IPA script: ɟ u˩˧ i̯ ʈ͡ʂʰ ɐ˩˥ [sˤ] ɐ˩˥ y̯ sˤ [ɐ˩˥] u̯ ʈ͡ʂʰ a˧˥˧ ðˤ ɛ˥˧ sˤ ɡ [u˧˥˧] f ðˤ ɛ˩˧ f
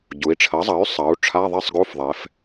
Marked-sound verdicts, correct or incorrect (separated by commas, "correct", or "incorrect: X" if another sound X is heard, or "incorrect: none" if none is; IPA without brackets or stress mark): incorrect: zˤ, incorrect: ɐ˩˧, correct